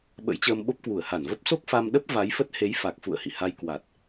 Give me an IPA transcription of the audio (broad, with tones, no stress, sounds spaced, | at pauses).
ɓ ə̰˧˥ j t͡ɕ əː˧ m ɓ o˦˥ p̚ k w u˧˩ ə̯ h a˧˩ n v ə˦˥ p̚ s o˦˥ k̚ f a˧ m ɗ ə˦˥ p̚ v a˨˦ j f ə˦˥ t̚ h e˨˦ j f a˨˩ k̚ f ṵ˧˨ ə̯ h ḭ˧˨ h a˧ j k w a˨˩ t̚